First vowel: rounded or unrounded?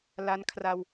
unrounded